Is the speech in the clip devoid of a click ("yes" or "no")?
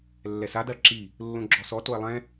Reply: no